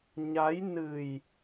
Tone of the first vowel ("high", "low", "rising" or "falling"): rising